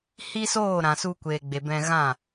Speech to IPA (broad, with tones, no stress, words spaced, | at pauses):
hi˦soː˦˨ɾã˨su˧ kʷeː˨ɡ͡be˨bɛ̃˧ ɣã˦˨